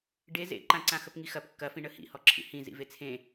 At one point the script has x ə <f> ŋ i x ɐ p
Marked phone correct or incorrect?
incorrect